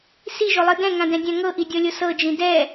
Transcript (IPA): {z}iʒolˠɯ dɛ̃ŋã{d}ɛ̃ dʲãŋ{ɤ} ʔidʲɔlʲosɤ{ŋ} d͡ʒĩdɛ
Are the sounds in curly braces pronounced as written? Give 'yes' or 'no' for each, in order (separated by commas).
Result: no, yes, yes, no